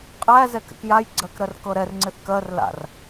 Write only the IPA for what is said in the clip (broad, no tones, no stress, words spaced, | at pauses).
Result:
qʼæ zɛkɛ̰kjajɡ͡ǀɜk ɾɜrkɤɾɛrŋ͡ǀɪθ kɜrla̰r